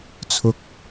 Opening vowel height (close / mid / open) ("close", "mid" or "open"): close